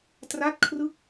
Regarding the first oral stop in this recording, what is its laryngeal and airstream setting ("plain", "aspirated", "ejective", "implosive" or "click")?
plain